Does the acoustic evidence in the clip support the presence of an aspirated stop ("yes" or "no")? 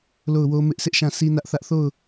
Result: no